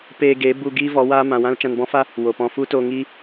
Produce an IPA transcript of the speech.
peː˧ɡeː˨˦ bu˧ ɡiː˦vɔ˨˦ waː˦ mã˨wã˦l t͡ʃã˧nbɔ̃˦fa˦ | wo˨pɔ̃˧ fu˦ toː˧ŋiː˦

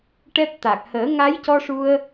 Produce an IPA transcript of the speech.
ʈɛ˦˥p̚ t̪a˨˩k̚həː˨˩˦ ŋa˧˥jcɔ˧ʂu˧ə̯

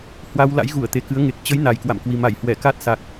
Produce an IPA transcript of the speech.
hwa˧w la̰˧˥jɣu˧˩ə̯ t̪e˨˩kɨ˨˦ə̯ŋe˨˩k̚ t͡ɕə˨˦j na˨˩jkwa̰˧˨mkwi˨˩ ma˧˩jhwɛ˧˩ka˦˥t̚ sa˨˩k̚

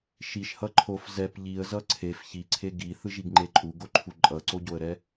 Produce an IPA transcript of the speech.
ʃiʃhʌ ǃʰof zɛp ʎiə̯zʌ ǀʰef çiǀʰe ɡiθɯʒiɡŋ͡ǃe ǃʼuɡoǃʰu ǃʼʌǀoɟoə̯ɾɛ

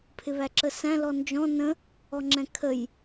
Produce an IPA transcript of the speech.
pʰɪβæǁəsæ̃ lɔnd͡ʒɔ̃ nə̃ | ɔŋ͡ǁɛ̃kʰəj

